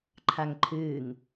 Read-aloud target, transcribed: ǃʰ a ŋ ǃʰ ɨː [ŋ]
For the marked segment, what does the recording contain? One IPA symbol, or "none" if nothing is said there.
ŋ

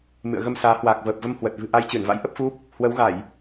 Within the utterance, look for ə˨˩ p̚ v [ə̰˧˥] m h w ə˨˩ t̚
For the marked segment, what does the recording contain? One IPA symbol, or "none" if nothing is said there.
ə˧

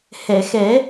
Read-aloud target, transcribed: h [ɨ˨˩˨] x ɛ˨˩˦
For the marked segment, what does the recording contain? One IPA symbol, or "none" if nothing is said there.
ɛ˨˩˨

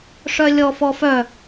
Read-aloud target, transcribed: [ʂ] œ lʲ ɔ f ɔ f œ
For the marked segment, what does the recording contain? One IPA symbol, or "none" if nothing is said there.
ʂ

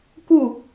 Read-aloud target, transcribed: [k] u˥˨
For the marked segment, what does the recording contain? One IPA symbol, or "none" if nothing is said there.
k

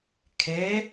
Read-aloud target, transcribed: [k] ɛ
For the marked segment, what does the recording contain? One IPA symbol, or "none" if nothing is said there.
kʰ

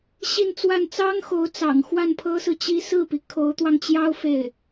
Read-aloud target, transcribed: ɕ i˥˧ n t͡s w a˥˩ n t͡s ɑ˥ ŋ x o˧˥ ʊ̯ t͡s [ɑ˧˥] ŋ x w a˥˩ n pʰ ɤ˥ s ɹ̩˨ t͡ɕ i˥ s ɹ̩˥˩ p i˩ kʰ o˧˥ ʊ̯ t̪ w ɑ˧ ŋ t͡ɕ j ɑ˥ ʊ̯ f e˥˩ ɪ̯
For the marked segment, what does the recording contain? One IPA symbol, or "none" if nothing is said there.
ɑ̰˨˩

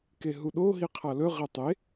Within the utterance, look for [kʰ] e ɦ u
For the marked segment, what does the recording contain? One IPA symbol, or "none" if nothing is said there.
k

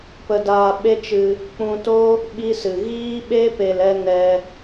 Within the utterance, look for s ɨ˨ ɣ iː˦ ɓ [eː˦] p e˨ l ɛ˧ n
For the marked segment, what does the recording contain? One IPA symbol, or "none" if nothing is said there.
e˦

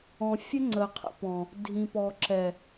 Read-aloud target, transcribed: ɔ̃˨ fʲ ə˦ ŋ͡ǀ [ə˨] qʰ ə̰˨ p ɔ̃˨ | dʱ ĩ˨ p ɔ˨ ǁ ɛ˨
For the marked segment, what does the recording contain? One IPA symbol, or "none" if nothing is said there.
ə˨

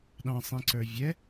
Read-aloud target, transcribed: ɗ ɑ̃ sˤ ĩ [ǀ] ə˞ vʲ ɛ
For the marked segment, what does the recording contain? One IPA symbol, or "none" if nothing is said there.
ǀ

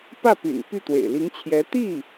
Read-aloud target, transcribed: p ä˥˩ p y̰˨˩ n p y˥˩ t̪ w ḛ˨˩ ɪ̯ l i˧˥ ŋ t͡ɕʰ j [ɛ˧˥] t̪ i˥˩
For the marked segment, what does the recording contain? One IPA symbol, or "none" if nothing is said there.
ɛ˧˥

